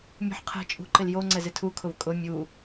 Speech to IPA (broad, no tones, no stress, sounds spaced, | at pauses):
mʲ ṳ ħ qʰ ɛ̤ t͡ʃʼ ṳ ǃ ɪ l j o ŋ͡ǀ ɛ z ɪ tʰ u kʰ ʊ v kʼ ʊ mʲ u